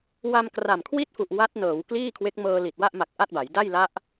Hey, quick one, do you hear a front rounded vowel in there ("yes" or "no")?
no